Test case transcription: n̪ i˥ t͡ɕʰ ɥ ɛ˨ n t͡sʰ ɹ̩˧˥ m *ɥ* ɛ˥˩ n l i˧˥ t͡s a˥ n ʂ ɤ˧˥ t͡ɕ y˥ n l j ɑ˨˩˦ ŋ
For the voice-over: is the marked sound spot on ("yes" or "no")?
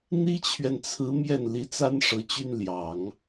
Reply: no